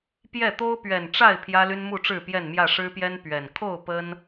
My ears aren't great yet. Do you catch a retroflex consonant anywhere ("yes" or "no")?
yes